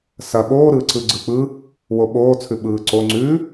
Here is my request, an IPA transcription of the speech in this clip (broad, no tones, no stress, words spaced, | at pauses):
sɐ ɓoːɾɯːǀɯ ɡ͡ǀɯk͡pɯ | woɓoːt͡sʰʉ ɓɯːǀo ŋ͡ǀʉ